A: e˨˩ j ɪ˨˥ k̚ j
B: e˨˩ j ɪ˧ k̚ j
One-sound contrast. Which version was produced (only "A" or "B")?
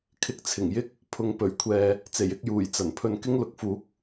B